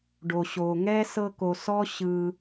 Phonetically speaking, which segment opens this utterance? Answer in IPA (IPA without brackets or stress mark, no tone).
ɖ